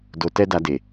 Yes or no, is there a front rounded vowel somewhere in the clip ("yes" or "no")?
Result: no